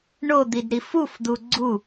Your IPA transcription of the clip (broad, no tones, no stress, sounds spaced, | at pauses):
ɳ o d̪ i d ɾ i f u f d̪ u ɡ͡ǀ u